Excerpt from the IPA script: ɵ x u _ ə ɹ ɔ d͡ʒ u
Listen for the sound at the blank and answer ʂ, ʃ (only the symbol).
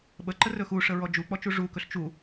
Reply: ʂ